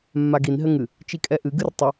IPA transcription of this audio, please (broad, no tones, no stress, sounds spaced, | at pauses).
mː a ɡ i n ɦ ɘ ŋ ɨ | t͡ʃ i kʼ ɛ ʔ ɨ ɡ ɨ r tˤ ə